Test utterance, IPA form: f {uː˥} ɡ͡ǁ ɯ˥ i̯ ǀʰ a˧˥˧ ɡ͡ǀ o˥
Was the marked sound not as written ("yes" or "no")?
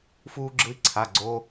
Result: no